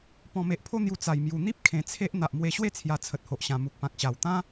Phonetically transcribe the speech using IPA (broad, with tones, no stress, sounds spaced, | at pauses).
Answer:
p ɔ̃˨˩ m e˨ ʔ pʰ o˧ n̪ j u˨˩ t͡s a˨˩ j m j u˨˩ n̪ i˦ p̚ kʰ ẽ˨˩ t͡sʰ e˦ ʔ n̪ a˨ ʔ m w e˧ ɕ w e˥˧ t͡sʰ j a˧ t͡sʰ ə˨ t̚ h o˨ ʔ ɕ ã˨˩ m u˨ k̚ p ã˨ k̚ ɕ a˨˩ w t̪ ã˦